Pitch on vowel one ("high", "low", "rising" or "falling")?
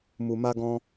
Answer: low